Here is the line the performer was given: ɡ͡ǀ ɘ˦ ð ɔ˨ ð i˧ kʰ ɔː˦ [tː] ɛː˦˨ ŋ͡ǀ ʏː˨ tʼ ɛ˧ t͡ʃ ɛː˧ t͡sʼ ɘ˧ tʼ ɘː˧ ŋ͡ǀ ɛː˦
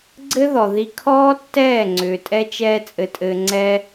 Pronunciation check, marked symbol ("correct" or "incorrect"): correct